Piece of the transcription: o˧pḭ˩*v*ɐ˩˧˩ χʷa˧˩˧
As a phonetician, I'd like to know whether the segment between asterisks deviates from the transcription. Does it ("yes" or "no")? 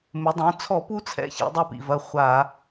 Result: no